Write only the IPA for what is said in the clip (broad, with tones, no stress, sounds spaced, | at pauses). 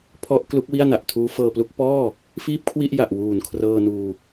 pʰ ɔ˦˥ ʔ k l u˦˥ k̚ w i˥˩ a̯ n a˨˩ ʔ tʰ uː˦˥ f ɤː˧ p l u˦˥ k̚ p ɔː˥˩ | f iː˥˩ p̚ kʰ w i˥˩ ʔ j a˨˩ ʔ w uː˨˩ n kʰ r ɤː˧ n uː˧